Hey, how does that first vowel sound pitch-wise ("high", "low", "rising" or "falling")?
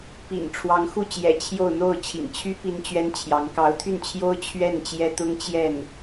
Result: low